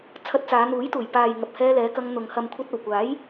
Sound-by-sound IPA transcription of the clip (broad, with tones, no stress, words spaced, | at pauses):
t͡sʰɐ˧t̚t͡saː˨˧ n̪uː˨˥jt̪uː˨˩j paː˨jŋɐ˨p̚ hɛː˧lɛː˨˧kɐ˧ŋ n̪ʊ˨ŋ hɐ˨mkʷʰɐ˧t̚ɐ˨˩wkʷaː˨˥j